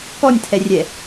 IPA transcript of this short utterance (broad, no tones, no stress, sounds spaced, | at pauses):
k ɔ nʲ tʰ ɛ rʲ ɛ